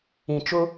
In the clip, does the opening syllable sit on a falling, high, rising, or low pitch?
low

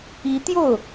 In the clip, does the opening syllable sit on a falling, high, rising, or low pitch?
rising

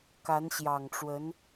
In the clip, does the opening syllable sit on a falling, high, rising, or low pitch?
rising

